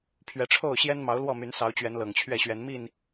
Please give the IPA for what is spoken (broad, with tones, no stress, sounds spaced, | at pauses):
pʰ ɥ ɛ˨˦ ʈ͡ʂʰ o˥˨ ʊ̯ ɕ j ɛ˦ n m ɑ˨˦ ʊ̯ l w ɔ˥˨ m y˨˦ n s ɑ˨˦ ʊ̯ t͡ɕ ɥ ɛ˨˦ n l ɤ˨˩ ŋ t͡ɕʰ ɥ ɛ˥˨ ɕ ɥ ɛ˨˦ n m i˥˨ n